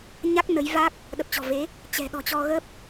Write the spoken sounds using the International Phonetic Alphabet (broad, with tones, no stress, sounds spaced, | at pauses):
ɲ a˦˥ k̚ n ə˨˦ j v a˦˥ k̚ | ɗ ə˨˩ p̚ t͡ɕ ɔ̤˨˩ v e˨˦ | t͡ɕ ɛ̤˨˩ ɗ ɔ̤˨˩ t͡ɕ ɔ˧ ɣ ə˦˥ p̚